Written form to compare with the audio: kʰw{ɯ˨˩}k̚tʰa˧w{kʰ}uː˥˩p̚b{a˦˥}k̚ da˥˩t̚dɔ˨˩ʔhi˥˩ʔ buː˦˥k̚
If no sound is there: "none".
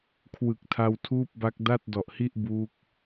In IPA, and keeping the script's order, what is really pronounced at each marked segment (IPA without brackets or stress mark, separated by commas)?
ɯ˨˩, tʰ, a˦˥